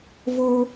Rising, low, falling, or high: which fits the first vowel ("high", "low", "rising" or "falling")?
high